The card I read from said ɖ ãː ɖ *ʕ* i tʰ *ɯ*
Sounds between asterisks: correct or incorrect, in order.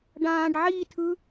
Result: correct, correct

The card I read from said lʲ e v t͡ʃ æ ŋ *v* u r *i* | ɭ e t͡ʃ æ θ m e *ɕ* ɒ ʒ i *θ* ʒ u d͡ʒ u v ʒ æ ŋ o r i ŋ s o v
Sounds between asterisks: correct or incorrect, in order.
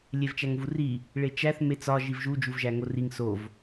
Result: correct, correct, incorrect: t͡s, incorrect: v

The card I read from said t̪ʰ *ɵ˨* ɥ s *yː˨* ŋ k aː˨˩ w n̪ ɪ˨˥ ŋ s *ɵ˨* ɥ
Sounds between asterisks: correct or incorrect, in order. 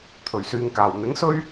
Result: incorrect: ɵ˨˩, correct, incorrect: ɵ˥

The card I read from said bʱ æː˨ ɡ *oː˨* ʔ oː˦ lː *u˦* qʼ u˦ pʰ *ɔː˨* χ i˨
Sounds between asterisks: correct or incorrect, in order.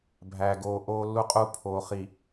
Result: correct, correct, incorrect: oː˨

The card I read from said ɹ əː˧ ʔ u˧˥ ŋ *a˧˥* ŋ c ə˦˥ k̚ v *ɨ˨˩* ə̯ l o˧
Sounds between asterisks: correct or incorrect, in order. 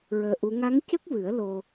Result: correct, incorrect: ɨ˨˩˦

